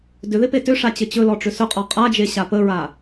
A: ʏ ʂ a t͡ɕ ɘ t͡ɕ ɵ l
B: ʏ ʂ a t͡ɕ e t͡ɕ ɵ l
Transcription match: A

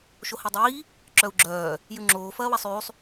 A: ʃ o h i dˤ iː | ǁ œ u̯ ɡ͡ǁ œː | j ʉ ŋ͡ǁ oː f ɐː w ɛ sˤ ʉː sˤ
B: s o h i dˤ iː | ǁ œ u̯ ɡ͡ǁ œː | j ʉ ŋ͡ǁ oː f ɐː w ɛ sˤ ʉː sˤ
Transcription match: A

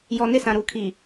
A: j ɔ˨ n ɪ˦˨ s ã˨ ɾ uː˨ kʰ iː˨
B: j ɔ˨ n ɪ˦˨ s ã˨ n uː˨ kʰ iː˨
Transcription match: A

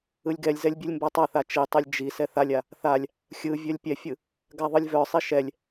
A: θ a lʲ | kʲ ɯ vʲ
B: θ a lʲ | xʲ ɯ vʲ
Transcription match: B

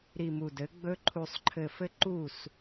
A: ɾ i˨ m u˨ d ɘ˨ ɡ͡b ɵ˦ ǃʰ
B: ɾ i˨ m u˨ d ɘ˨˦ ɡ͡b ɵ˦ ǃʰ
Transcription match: B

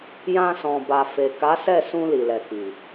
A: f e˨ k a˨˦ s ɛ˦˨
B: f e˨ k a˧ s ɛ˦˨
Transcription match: A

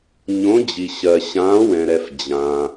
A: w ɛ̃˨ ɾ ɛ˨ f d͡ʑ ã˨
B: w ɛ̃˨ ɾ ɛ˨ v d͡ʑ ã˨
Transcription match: A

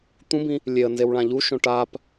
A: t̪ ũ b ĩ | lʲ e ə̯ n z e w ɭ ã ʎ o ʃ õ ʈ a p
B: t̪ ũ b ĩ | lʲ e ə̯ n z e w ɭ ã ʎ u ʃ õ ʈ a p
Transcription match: B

